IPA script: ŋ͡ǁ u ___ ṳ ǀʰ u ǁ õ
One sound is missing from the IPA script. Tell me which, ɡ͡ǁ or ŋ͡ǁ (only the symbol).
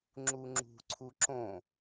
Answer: ŋ͡ǁ